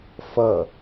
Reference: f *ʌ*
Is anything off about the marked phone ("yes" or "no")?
no